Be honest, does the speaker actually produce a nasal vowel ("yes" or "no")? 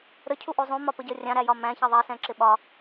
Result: yes